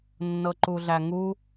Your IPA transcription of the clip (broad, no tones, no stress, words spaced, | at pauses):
nːɤǃuɮæŋu